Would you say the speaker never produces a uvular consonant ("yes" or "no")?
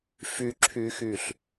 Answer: yes